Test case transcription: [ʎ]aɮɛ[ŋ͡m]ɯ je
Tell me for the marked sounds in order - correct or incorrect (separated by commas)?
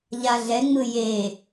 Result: correct, correct